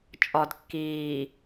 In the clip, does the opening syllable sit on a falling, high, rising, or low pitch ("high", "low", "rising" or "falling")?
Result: low